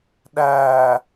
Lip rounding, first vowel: unrounded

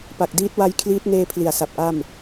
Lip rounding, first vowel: unrounded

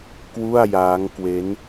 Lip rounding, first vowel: rounded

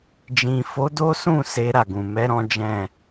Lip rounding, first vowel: unrounded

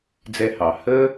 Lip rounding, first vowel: unrounded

